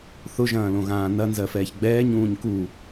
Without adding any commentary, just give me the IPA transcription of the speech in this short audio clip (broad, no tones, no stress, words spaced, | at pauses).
θʊʒɐ̃ːlõɣãː nɐnzɜfɛːç ɡ͡bɛːɲũːɲ ku